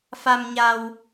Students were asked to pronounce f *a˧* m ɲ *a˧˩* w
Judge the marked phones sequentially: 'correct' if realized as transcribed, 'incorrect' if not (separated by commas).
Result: correct, incorrect